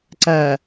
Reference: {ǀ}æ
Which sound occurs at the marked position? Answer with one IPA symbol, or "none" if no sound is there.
ǀ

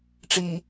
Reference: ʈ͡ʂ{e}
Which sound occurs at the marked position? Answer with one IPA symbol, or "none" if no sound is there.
i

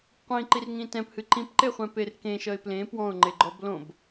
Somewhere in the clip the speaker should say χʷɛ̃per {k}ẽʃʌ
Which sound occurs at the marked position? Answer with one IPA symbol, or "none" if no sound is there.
k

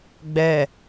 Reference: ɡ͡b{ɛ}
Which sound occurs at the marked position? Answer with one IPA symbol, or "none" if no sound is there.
ɛ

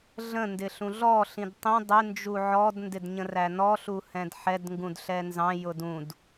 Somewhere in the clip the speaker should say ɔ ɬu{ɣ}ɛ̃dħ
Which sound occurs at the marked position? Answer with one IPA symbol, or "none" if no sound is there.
h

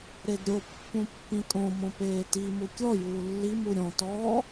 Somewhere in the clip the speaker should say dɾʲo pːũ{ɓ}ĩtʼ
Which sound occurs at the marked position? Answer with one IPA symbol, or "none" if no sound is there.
pː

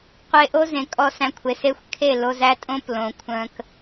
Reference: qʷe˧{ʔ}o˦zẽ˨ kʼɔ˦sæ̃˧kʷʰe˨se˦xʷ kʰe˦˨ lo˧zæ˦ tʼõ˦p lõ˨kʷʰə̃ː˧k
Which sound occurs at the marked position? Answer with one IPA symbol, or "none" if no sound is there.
ʔ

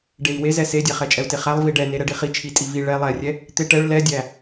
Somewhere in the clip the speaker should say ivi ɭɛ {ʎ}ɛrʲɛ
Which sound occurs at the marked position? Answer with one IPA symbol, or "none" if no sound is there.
lˠ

